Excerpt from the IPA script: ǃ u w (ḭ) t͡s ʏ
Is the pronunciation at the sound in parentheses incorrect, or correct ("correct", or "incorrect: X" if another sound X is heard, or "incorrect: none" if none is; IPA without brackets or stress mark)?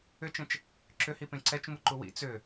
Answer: correct